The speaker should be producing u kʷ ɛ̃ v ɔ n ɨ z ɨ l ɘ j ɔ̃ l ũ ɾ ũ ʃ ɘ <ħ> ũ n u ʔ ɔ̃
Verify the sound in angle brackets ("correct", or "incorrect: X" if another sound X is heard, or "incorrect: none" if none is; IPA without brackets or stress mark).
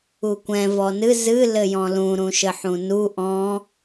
correct